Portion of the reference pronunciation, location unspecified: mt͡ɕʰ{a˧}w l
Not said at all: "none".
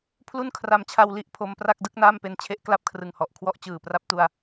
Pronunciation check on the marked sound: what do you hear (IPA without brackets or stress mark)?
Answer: a˧